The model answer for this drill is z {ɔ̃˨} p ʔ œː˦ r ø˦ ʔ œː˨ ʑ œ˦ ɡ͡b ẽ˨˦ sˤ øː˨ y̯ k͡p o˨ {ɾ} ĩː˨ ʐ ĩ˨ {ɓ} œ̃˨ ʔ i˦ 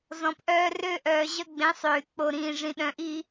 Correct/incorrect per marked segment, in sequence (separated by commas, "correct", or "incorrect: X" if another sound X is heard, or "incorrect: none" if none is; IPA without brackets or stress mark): correct, correct, incorrect: ɗ